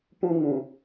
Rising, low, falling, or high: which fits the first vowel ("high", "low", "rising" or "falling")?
high